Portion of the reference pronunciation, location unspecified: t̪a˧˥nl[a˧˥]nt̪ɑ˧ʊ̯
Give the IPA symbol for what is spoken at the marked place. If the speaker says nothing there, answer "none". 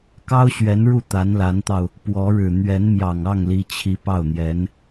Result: a˧˥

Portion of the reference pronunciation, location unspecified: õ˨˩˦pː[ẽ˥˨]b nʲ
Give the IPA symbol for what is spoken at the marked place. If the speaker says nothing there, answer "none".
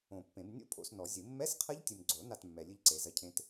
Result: ẽ˨˩˦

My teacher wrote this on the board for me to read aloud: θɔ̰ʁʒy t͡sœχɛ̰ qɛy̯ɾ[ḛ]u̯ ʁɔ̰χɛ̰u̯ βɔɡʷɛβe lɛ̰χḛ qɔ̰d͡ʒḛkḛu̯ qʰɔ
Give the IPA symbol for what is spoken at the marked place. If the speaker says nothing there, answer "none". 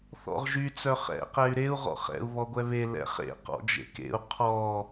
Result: e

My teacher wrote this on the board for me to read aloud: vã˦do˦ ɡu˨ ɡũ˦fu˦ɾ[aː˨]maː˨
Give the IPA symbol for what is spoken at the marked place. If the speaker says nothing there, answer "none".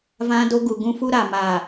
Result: aː˨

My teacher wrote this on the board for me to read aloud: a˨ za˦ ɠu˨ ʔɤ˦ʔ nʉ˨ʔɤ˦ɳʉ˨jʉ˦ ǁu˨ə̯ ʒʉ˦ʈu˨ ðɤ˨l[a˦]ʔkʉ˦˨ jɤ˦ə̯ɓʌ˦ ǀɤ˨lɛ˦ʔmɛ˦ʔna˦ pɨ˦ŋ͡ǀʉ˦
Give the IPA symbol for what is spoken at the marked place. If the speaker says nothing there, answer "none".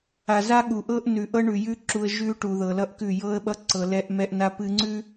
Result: ʌ˦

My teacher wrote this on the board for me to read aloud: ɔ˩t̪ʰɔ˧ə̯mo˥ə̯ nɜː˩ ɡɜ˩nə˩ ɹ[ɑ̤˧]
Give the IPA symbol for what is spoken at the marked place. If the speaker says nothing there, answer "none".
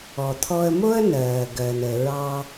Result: ɑ˧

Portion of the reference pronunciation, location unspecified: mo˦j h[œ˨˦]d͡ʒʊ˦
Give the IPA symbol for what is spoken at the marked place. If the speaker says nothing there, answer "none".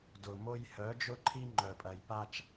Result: œ˨˦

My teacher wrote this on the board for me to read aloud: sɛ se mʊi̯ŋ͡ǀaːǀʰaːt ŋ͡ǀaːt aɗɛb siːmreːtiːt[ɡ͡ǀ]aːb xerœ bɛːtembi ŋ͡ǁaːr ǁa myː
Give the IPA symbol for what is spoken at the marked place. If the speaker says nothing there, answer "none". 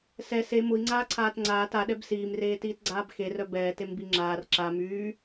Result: ɡ͡ǀ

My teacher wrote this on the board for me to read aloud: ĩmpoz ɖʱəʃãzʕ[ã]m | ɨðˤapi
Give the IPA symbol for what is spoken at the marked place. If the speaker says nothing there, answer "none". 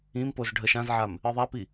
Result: a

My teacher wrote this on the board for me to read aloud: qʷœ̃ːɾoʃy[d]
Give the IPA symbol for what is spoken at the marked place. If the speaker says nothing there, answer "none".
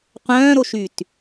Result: t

